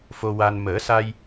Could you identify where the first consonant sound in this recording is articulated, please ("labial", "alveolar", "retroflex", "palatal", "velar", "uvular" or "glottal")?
labial